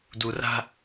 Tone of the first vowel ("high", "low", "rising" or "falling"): low